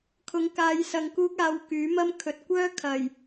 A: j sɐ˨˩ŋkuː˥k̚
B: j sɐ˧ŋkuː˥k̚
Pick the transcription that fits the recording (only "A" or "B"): B